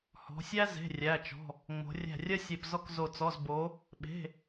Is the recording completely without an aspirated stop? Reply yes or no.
yes